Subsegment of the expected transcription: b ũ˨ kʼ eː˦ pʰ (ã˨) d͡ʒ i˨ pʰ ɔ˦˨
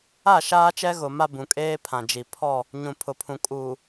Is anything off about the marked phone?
no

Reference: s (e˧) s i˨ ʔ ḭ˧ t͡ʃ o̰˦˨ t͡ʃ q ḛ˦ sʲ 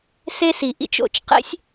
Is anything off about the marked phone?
no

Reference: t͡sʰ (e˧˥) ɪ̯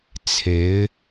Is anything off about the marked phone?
no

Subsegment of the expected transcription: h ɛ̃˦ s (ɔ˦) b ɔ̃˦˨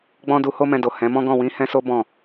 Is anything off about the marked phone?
yes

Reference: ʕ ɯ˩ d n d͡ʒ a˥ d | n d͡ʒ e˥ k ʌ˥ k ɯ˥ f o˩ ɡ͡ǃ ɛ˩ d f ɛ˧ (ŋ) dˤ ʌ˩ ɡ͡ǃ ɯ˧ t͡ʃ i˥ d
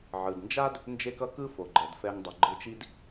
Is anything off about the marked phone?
no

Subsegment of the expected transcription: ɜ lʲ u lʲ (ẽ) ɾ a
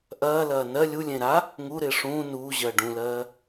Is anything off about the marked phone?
no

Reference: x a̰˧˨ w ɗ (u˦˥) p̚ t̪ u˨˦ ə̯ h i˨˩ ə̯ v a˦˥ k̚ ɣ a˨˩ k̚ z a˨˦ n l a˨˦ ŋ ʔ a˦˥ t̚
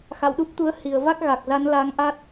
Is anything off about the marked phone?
no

